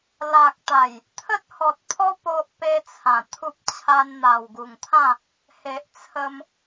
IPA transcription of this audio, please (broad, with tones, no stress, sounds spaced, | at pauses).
l a˨ k̚ t̪ a˨˩ j | t̪ʰ ə˦ t̚ h ɔ˨ t̚ pʰ ɔ˦ p o˦ ʔ p e˦ t͡sʰ ã˨˩ t̪ʰ u˦ p̚ t͡ɕʰ a˧ n n̪ a˨˩ w ɡ u˨˩ ŋ t̪ʰ ã˥˧ | h e˨ ʔ t͡sʰ ə˧ m